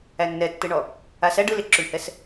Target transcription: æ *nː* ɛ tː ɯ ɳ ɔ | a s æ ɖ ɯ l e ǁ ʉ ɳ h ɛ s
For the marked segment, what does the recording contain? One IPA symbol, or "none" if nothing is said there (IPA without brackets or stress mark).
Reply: nː